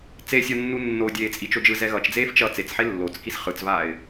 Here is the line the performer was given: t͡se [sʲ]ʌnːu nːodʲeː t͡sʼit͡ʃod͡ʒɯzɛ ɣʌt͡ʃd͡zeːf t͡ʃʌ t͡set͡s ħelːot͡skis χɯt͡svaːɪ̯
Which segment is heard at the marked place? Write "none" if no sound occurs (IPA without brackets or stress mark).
sʲ